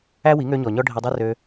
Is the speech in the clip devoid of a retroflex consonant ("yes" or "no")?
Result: no